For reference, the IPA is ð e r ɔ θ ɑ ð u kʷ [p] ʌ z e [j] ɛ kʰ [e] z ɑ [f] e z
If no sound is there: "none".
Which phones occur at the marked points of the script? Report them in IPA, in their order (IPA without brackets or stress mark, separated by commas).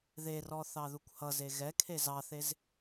h, ɣ, e, θ